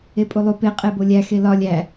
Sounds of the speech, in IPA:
epʼulˠu pe qʼebolʲæ xelɒ lʲæ

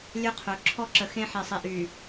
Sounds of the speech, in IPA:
lʲø˦ qʰø˨˦ ǁʰɔ˦ǁə˨xẽ˦ ħe˨sˤi˨ʔy˨

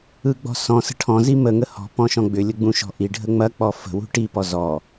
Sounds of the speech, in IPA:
ɯɡ͡bɔ̤sɔ̃sə̤ ʈʰɔ̃zi məŋə hɔ̤ pɔ̃ʃɔ̃ɡ͡bʏlʲə ɡ͡bũʃɔ̤ʔiɖʱə ŋ͡mɐk͡pɔ fə̤ wṳʈipɔ zɔ

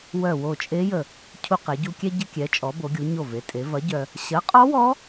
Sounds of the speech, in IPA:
wœ˧˩wo˧˩t͡ʃʼe˦˥ jə˧˩ | cʰu˧qe˩˧ɟu˧ kʲɛ˧ ɟə˧kʲɛ˩˧t͡ʃʼɔ˩˧ bo˩˧ɡʲu˩˧ ɲo˧˩ve˩˧tʼe˩˧vɐ˨˥ ɟœ˧ | ɕɐ˨˥qʼɔ˦˥wɔ˦˥

